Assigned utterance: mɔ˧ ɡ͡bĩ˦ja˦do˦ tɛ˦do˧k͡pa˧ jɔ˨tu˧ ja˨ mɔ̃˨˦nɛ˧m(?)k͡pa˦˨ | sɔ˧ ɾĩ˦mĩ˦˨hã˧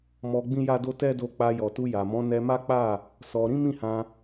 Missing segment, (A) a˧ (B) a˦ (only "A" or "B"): B